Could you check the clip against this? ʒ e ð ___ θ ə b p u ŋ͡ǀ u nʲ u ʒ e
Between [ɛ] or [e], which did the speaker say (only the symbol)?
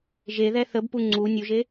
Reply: ɛ